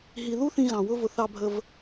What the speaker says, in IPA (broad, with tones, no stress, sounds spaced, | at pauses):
ɦ i˨ ð u˦ θ ĩ˧ ɣ ɑ̃˨ w ʊ˦ v ʊ˧ θ ɑ˧ bʱ ə˧ v